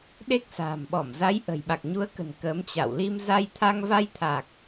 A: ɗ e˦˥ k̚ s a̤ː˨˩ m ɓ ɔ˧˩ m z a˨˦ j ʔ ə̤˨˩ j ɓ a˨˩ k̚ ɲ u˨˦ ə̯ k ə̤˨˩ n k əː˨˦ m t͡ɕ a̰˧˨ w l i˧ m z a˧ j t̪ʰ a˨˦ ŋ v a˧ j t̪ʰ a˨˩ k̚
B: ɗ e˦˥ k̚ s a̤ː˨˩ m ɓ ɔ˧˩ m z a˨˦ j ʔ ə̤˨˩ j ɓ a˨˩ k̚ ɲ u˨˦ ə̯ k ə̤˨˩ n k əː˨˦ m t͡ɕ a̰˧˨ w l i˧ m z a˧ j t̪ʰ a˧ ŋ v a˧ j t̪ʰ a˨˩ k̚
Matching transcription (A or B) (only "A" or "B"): B